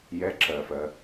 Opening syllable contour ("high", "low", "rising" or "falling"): rising